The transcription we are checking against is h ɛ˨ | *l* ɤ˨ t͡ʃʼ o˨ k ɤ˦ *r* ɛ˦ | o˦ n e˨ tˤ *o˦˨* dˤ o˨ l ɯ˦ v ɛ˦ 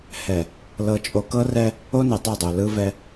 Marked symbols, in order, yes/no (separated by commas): yes, yes, yes